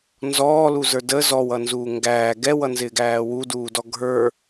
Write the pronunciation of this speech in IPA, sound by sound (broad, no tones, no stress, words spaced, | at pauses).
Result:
nzɔːluzə˞ də zɔwʌnzuː ŋɡæː ɡɛwʌnzɪːɡæː wuduːdɔ ɡʱə˞